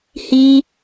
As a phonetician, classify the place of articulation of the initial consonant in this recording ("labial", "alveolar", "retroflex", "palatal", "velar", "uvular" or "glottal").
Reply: glottal